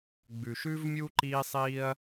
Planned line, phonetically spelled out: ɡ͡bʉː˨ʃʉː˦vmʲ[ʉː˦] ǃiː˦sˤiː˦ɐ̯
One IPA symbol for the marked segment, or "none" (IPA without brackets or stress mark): uː˦